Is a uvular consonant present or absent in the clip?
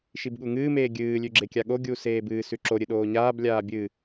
absent